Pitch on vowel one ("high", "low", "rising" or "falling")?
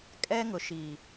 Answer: high